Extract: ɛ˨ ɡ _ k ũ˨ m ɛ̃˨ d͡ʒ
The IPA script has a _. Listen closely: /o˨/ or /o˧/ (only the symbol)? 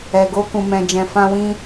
o˧